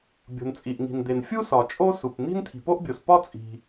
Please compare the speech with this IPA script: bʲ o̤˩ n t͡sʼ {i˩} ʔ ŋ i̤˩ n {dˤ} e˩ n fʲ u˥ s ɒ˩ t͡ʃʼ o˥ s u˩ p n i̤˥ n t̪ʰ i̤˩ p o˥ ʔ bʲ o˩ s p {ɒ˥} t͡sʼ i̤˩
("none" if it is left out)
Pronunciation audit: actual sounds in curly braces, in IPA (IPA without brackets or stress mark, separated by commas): i˩, d̪, ɒ˥